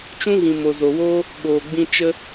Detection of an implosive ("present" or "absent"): present